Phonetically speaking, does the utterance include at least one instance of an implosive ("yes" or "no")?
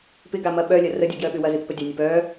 yes